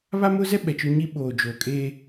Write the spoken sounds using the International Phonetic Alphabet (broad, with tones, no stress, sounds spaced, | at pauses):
β a˦ m ʊ˦ z ɛ˦ ɓ ɛ˨ t͡ʃ ʊ˦ ɲ i˦ ɓ oː˨ d͡ʒ oː˨ kʼ eː˦